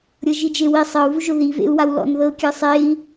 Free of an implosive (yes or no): yes